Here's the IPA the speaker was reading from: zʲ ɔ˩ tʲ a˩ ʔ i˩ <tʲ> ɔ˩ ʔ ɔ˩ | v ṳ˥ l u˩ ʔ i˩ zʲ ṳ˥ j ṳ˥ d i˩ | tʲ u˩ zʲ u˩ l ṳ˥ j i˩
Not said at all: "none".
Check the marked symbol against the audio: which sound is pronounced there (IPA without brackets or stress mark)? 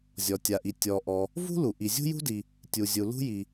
tʲ